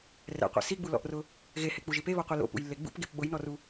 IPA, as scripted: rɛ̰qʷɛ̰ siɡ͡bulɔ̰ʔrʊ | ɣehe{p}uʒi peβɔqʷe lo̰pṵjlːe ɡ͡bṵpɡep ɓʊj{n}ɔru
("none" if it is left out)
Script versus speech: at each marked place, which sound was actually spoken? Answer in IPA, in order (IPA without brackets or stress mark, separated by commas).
k͡p, n